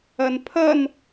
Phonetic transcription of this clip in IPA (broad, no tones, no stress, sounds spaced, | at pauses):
ʌ n pʰ ʌ n